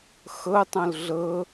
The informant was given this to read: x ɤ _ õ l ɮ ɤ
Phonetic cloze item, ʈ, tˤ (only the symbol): tˤ